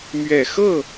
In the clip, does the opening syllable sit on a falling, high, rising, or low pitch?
low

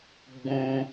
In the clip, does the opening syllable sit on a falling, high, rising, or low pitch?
high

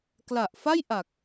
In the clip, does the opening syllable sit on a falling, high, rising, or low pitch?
low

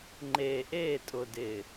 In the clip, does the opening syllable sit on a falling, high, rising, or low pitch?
low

